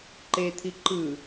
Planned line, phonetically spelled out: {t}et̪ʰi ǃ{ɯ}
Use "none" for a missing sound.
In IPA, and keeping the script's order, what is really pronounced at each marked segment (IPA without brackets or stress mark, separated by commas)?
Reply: ǃ, ɯ